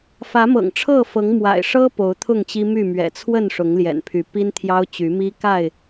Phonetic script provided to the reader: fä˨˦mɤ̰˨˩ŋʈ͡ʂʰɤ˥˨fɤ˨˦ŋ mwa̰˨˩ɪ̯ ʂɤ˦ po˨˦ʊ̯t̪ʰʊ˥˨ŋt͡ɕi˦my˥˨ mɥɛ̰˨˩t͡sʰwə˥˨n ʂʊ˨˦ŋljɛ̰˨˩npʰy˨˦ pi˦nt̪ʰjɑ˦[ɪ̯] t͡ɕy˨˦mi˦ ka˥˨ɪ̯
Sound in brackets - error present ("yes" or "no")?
yes